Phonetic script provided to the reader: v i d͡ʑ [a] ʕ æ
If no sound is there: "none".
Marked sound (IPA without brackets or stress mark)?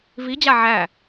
a